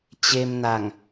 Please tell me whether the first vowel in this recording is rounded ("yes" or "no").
no